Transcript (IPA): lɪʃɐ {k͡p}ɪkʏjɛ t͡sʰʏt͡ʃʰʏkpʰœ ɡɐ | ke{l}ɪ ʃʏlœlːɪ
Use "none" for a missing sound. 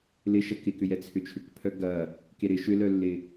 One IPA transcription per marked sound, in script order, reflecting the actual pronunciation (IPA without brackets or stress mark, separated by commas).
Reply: k, ɾ